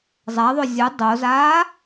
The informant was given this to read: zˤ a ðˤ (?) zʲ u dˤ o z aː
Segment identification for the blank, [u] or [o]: o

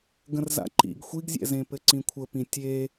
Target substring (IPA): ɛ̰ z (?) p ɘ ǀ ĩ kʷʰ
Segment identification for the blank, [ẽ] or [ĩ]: ẽ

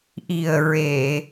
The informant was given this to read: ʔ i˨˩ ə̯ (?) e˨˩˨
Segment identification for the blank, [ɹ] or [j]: ɹ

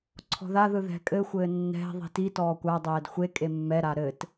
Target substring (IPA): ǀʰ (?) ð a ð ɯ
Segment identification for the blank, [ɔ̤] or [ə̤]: ɔ̤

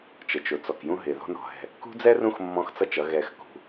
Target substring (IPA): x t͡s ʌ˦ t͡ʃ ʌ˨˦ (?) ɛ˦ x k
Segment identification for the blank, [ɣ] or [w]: ɣ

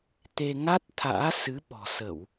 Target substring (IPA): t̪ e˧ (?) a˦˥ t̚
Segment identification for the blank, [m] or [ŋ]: ŋ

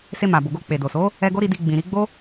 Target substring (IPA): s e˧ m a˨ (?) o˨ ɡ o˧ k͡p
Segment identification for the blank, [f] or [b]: b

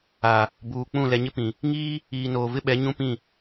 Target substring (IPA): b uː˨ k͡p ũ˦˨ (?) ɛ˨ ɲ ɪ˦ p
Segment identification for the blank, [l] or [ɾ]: l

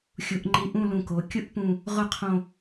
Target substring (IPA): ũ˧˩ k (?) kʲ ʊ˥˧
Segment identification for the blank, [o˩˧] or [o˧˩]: o˩˧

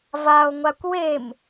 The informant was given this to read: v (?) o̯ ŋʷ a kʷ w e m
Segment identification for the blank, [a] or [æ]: a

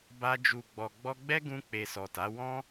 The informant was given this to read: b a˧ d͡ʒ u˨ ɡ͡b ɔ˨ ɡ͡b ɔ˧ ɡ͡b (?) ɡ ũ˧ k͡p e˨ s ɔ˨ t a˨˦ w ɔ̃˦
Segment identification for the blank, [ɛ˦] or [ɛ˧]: ɛ˦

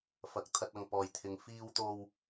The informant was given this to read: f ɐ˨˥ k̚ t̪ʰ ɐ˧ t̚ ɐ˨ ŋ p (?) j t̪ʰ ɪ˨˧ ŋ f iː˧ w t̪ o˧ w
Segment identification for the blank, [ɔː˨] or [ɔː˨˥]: ɔː˨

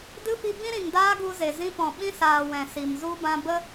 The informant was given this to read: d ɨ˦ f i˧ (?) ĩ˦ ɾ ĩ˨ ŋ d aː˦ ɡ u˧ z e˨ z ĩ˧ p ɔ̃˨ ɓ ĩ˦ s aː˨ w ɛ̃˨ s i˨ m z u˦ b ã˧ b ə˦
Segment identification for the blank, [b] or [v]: b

